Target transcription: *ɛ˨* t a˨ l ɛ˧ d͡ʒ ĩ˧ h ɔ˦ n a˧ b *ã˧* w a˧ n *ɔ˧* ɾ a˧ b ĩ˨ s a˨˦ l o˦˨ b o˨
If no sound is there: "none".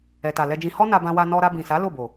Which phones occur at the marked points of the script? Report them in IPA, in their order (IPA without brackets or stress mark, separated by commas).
ɛ˨, ã˧, ɔ˧